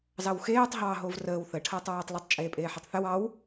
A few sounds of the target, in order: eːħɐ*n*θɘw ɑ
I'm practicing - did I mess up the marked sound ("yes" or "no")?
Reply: yes